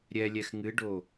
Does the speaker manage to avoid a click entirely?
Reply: yes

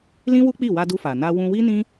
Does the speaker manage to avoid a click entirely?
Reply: yes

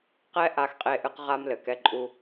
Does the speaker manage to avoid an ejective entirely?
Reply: no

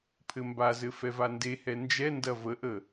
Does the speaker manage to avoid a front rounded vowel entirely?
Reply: yes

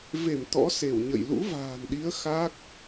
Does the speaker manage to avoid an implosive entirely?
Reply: no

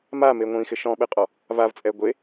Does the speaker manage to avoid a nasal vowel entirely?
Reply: no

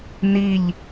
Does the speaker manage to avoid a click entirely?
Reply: yes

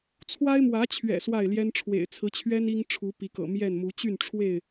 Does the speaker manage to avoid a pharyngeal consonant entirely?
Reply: yes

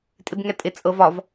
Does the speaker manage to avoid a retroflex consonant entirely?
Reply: yes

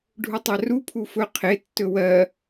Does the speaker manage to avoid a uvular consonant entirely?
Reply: no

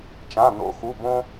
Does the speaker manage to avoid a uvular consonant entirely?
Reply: yes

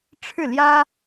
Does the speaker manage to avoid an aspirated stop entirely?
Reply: no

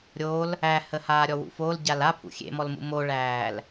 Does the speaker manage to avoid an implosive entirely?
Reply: yes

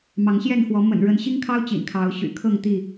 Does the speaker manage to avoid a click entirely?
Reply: yes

